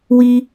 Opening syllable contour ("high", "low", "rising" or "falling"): high